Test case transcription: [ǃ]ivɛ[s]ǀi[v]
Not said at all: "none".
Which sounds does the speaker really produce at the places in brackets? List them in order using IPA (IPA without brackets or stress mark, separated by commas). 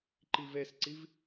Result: ǃ, s, v